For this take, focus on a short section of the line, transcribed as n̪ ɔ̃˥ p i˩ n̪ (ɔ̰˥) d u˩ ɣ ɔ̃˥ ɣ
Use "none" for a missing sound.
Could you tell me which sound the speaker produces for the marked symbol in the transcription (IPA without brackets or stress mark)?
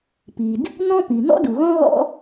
ɔ̰˥